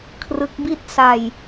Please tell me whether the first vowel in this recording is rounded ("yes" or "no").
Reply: no